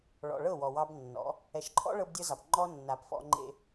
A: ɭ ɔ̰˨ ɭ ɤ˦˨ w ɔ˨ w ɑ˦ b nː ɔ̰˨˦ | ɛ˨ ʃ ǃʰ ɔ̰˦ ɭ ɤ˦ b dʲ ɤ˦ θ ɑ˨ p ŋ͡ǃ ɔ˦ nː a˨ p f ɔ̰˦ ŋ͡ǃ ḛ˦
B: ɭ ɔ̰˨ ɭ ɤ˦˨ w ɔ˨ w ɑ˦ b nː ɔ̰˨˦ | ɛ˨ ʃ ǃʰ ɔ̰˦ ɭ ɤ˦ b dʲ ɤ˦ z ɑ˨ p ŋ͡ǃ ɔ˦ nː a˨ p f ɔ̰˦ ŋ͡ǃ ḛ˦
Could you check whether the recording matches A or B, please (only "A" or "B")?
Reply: B